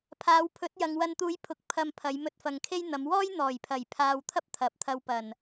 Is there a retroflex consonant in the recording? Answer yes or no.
no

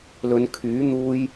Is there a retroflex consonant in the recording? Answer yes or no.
no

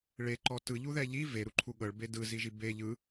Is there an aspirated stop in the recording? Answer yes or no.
yes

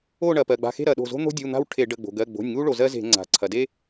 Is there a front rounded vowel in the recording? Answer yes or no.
no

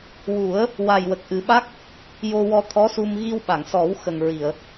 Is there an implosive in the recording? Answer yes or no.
yes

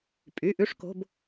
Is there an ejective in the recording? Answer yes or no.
yes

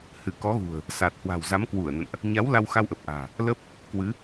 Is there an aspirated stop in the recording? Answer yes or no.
no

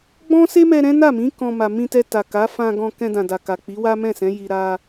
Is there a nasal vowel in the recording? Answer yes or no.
yes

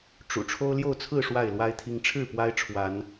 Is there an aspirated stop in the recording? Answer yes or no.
yes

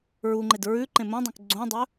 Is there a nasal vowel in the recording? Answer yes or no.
yes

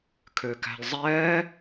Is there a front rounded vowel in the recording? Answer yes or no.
yes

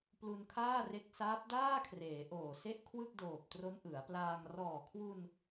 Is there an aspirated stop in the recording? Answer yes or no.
yes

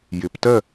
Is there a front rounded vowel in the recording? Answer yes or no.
no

